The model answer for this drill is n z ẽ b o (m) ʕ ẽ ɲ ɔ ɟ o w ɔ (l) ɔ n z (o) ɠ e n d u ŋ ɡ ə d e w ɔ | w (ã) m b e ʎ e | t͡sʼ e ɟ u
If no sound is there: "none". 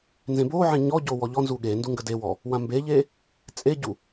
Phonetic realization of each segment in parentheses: none, ʎ, u, ã

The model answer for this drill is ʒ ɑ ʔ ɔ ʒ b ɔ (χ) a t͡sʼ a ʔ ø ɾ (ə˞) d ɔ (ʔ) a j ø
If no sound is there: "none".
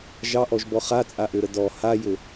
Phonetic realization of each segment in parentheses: χ, ə, h

